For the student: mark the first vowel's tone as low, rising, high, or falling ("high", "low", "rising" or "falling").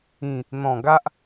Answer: low